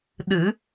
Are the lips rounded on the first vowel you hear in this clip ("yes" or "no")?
no